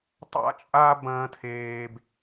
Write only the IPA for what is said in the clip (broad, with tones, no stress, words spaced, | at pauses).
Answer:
tˤa̰˥ t͡ʃʼa˥ bɐ̃ː˥tʰeː˥b